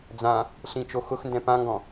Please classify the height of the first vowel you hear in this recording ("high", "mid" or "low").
low